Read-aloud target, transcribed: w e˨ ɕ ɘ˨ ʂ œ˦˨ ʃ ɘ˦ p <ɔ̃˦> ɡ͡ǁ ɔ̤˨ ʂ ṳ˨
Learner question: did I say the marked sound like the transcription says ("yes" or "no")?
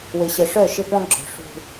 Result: yes